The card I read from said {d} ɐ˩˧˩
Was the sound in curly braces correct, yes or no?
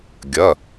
no